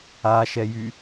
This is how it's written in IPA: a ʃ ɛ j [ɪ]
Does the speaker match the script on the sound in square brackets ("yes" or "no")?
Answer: no